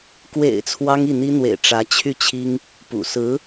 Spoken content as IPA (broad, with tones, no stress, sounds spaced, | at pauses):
k w ḛ˨˩ ɪ̯ t͡sʰ w ɑ˥ ŋ i˥˩ n̪ i˥ n̪ w ḛ˨˩ ɪ̯ ʈ͡ʂ ä˧˥ t͡ɕʰ y˥˩ t͡ɕʰ i˥ ŋ | p ṵ˨˩ s ɹ̩˧˥